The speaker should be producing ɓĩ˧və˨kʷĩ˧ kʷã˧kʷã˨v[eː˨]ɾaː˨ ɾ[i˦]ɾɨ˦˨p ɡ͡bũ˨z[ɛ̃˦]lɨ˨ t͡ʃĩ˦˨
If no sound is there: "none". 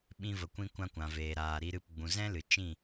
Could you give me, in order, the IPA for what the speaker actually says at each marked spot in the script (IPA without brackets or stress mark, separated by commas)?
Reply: eː˨, i˧, ɛ̃˦